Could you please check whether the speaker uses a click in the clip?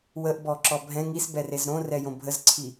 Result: yes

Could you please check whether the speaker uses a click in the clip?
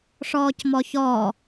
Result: no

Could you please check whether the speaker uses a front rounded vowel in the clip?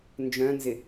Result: yes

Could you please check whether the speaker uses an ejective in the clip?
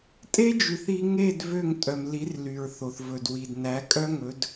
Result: yes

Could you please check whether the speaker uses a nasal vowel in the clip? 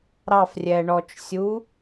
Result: no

